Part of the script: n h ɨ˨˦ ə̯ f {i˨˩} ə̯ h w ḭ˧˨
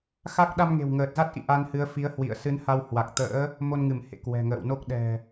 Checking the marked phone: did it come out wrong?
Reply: yes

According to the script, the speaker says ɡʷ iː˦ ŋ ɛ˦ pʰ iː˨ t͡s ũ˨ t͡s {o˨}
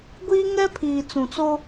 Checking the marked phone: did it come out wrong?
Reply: yes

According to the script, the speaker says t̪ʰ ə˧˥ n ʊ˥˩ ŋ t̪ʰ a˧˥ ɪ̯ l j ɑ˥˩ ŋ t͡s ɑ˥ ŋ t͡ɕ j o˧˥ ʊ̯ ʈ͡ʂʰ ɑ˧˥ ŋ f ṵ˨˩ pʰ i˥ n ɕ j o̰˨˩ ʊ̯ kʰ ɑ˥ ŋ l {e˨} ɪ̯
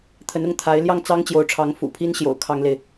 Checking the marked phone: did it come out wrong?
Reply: no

